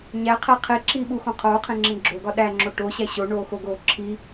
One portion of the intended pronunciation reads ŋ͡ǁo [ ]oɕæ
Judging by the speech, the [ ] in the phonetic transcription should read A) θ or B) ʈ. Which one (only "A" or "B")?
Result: B